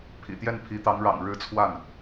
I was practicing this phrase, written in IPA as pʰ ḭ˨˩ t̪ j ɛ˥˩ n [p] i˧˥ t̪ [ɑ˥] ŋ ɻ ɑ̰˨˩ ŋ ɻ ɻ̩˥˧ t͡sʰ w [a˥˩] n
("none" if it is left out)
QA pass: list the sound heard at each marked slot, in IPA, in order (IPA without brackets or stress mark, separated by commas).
pʰ, ɑ˧˥, a˥˩